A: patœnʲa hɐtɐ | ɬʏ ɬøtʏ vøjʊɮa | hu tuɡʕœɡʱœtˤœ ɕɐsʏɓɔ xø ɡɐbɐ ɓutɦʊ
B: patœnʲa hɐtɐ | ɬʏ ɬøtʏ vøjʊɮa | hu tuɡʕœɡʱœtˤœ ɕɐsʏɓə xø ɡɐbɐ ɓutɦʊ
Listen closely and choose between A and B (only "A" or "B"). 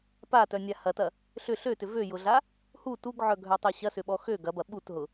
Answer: A